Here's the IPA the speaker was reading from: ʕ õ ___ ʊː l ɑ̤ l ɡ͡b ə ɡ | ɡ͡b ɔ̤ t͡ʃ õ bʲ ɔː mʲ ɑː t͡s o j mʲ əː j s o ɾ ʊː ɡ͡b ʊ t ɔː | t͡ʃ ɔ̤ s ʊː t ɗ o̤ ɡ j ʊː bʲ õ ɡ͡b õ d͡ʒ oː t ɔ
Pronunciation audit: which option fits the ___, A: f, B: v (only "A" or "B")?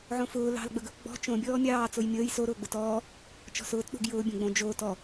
A